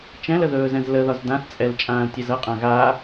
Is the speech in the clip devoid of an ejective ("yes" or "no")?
no